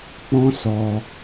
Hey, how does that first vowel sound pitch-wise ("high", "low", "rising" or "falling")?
high